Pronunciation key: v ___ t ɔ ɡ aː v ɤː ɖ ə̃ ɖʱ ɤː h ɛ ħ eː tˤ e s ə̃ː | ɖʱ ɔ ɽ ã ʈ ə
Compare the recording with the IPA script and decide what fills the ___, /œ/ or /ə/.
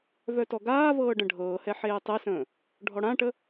œ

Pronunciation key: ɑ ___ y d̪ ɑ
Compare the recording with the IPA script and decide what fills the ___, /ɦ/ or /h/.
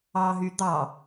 ɦ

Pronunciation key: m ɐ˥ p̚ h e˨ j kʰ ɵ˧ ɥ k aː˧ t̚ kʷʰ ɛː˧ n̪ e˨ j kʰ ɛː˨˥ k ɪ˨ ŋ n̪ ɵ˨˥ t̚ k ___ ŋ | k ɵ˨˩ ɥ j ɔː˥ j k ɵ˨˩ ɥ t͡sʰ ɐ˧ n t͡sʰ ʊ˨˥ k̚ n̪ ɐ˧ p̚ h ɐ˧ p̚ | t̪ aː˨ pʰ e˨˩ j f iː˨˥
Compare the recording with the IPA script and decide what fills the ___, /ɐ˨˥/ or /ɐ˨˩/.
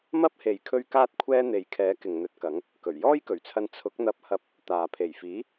ɐ˨˥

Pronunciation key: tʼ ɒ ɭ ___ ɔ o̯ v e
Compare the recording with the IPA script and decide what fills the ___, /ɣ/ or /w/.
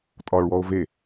w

